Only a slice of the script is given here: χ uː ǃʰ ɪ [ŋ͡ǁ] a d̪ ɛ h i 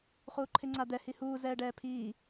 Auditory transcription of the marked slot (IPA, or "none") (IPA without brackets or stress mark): ŋ͡ǀ